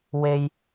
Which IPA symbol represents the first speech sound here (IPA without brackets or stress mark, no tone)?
w